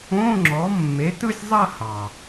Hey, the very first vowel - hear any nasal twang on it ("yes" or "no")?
yes